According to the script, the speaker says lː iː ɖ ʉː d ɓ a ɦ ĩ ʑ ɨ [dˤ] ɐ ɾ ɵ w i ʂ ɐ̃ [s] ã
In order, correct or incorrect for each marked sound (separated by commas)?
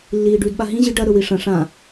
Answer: incorrect, incorrect